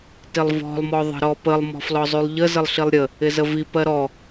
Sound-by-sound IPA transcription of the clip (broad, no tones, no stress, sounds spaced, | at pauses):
t ɪ lˠ v ɔ̤ lˠ m ɔ ðˤ ə̤ ɾ ɔ p ə lˠ m ɔ̤ f l ɔ zˤ y lˠ ʎ ə z ə lˠ ɬ i lˠ ɾʲ ə | ɪ z ə v i p ɜ ɾ ɔ